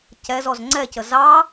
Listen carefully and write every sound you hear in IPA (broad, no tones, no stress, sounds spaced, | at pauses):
c ɛ z ɔ z ŋ͡ǀ ɛ c ə z ɑ